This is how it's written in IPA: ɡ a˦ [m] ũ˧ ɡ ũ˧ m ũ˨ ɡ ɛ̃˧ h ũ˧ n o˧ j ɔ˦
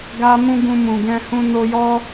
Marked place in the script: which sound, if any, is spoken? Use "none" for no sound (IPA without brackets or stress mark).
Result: m